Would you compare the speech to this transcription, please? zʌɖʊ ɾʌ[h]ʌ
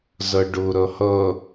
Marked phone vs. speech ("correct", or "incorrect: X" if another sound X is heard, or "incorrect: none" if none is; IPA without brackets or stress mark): correct